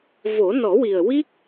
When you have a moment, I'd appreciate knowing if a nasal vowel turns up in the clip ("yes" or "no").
no